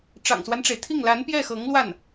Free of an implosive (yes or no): yes